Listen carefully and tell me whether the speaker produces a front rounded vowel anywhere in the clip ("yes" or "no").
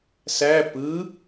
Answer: no